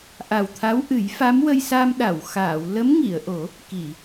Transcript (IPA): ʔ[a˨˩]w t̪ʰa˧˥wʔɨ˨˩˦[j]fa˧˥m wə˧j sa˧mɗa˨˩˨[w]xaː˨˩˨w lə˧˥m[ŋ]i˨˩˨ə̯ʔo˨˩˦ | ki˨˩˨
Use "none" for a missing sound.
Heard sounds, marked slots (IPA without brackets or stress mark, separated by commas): a˨˩, j, w, ŋ